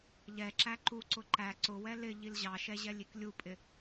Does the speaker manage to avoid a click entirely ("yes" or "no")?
no